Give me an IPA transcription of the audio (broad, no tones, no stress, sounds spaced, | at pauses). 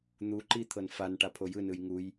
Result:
n̪ u ǃ i t̪ʰ ɤ n f a n ʈ a pʰ o j ɯ n ɯ j ŋ u j